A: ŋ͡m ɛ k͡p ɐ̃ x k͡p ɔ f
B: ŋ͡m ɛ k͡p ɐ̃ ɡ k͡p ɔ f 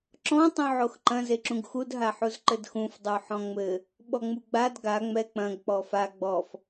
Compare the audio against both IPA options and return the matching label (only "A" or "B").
B